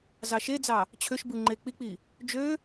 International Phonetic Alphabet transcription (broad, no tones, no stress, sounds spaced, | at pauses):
z ɑ ʃ e d͡z ɑ | t͡ɕʰ ø ʃ b ɯ ŋ͡ǃ e k͡p i k͡p i | d͡ʒ ø